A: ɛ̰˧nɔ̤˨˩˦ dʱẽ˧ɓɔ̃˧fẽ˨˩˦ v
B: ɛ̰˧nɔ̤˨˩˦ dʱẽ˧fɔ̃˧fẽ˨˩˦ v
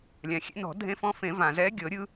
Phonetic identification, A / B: B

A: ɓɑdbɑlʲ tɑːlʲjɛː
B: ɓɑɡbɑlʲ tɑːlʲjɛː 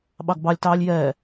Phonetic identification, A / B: B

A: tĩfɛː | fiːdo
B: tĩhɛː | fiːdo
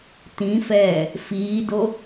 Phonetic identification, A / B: A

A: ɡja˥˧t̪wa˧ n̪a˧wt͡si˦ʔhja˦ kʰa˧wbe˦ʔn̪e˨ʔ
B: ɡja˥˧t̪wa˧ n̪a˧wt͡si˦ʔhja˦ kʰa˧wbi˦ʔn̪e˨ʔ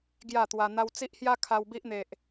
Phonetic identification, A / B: B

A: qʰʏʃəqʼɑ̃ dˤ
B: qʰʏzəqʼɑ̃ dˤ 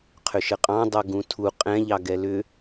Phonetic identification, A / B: A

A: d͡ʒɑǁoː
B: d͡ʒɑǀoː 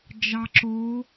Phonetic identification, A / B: A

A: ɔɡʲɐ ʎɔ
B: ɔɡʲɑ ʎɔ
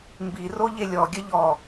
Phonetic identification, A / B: A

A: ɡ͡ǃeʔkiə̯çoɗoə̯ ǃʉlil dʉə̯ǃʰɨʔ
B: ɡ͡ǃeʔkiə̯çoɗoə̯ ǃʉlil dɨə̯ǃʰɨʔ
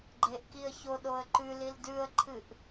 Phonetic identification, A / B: A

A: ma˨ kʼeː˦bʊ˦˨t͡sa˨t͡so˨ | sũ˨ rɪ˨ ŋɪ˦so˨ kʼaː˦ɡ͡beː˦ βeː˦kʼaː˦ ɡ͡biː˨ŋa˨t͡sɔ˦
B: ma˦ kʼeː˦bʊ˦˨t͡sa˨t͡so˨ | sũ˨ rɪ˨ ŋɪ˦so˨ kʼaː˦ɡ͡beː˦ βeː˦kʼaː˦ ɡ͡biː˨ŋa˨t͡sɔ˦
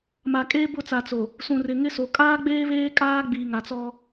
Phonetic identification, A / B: A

